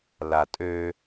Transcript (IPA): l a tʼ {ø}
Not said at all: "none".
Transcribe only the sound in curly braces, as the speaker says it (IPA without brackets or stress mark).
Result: ø